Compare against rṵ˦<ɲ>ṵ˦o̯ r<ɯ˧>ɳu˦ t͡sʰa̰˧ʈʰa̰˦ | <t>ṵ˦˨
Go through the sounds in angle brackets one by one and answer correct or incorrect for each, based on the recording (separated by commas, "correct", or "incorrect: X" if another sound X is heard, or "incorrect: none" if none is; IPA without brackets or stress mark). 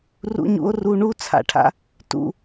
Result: correct, incorrect: u˧, correct